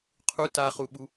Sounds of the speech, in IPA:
qʰu taχuɓu

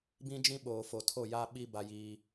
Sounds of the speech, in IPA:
bĩ˦d͡ʒĩ˦ ɓoː˨ fo˨tʰo˦˨ja˦ɓi˦ ba˦jiː˦

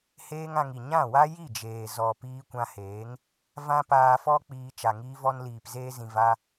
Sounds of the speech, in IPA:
heː˦ŋã˧ŋi˨ ɲã˦˨wa˦ ji˦˨d͡ʒeː˨ zɔ˨ piː˧kʷã˧heː˨˦ŋ | vã˦paː˧fɔ˦ k͡piː˧ t͡ʃa˨ŋiː˧vɔ˧n liː˨pzeː˧zĩ˨ va˧

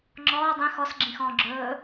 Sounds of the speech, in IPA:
ŋ͡ǁɔː dˤĩ xɔsɡ͡ǁĩxɔ̃ː ɡ͡ǁɵː

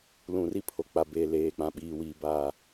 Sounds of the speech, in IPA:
lũ˨ri˦pʰo˨ k͡pa˨beː˨ leː˨k͡pã˨ɓiː˨wiː˨ ba˦˨

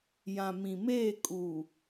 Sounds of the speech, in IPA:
jã˨mĩ˨meː˦˨ kʼu˨

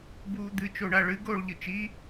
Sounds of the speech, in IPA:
buːd̪ɨ t͡ʃoɳaɭɨ ɡoːɭʎɨt͡ʃi

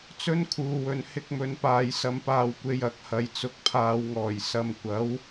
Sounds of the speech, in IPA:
t͡sɵ˥nkʰuː˨wɵ˨n hɪ˧k̚mɵ˨npaː˨j sɐ˧mpaː˧wkʷe˧j ɐ˨k̚ hɐ˨jt͡sʊ˨k̚pʰaː˨wŋɔː˨˩j sɐ˨mkʷɐ˨˥w

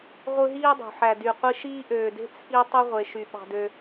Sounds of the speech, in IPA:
ʁʷɯ˦ɦiː˥dˤṳ˩ ħæ˨dy˨qʷi˦ʃiː˥ ʔøː˨de̤˥ t͡sʰi˦ tˤy˥ ʁʷe˨ʃy˨ ɓɑ̤˨dø˨

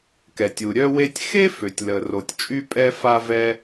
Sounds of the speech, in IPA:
kɛ˩tʲu˩ɾʲœ˥we˥tʲ xe˥ fø˩tʲlə˩ ro˩tʲt͡ʃʼy˥pʼɛ˥ fa˥ vɛ˥

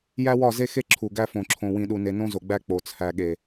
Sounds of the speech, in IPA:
jæ˦wɒ˦˨ze˦xe˦ ǁʰu˨ɡæ˦fõ˨ǁʰõ˨ wĩ˨ɗu˨ne˨ nõ˦zo˨ɡ͡bæ˦ k͡po˨t͡sʰæ˨ɠe˨

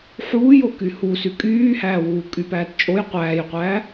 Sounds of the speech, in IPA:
ħuːjoky hu sykʼyːhæːwuː kʼypæːtt͡ʃʼoj qʷæːjqʷæː

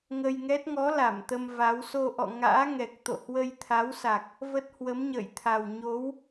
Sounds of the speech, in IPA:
ŋə˧jŋɛ˦˥t̚ ŋɔ˨˦ la˧˩mt̪ə˧m va˨˦w so˧ʔɔ̰˧˨ ŋa̰ː˧˥ ŋɛ˨˩k̚t̪o̰˧˨ hwə˧jt̪ʰa˨˦wsa˨˩k̚ | və˦˥t̚ hwə˨˦mɲə̰ː˧˨jt̪ʰa˨˩w ɲo˨˦w

